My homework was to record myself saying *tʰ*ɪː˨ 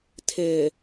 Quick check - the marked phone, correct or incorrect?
correct